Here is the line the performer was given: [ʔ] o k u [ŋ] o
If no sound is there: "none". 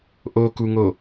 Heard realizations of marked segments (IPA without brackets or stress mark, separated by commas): ʔ, ŋ